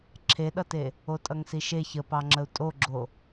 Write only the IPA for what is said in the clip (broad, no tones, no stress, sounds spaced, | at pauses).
ǁʰ e ɗ ʌ t e | o tʼ ʌ ŋ s i ʃ e ç ə p ɑ ŋ͡ǁ ə u̯ tʼ o ɡ͡ǁ o